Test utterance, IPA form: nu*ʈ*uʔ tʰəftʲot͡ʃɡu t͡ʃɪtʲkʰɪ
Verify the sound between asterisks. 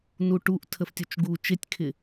correct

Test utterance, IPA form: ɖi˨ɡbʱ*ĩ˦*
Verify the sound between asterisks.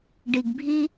incorrect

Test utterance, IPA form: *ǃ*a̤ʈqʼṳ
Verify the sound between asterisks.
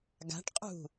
incorrect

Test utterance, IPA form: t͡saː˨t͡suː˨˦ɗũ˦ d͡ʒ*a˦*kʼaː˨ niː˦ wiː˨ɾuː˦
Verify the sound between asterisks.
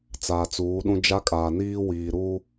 correct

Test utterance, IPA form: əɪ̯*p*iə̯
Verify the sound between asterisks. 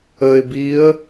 incorrect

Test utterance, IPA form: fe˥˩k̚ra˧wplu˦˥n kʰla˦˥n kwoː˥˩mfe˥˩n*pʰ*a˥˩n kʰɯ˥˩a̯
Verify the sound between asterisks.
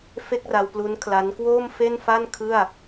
incorrect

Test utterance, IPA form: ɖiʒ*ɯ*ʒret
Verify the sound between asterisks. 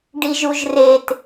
incorrect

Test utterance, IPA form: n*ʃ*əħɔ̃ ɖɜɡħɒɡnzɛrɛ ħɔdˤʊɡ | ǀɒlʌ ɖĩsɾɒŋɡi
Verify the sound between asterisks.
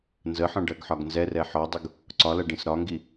incorrect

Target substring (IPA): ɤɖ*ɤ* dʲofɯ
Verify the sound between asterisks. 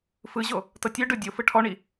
incorrect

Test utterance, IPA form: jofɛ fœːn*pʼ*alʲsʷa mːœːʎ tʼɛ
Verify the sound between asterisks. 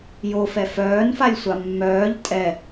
incorrect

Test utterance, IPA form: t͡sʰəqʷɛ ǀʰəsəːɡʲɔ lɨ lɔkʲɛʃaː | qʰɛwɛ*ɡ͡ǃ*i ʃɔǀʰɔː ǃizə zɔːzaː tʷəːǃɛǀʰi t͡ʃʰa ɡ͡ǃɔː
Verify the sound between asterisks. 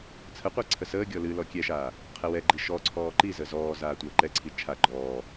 correct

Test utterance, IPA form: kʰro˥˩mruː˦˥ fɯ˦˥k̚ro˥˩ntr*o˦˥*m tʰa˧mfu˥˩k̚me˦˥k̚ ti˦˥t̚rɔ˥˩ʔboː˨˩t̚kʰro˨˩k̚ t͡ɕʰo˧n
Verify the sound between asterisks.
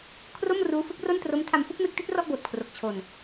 correct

